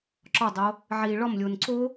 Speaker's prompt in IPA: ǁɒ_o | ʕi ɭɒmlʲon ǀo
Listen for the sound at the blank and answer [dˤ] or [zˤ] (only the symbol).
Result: dˤ